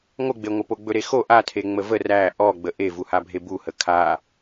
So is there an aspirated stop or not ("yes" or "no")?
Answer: yes